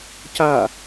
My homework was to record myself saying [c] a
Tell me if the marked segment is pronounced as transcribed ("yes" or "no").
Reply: yes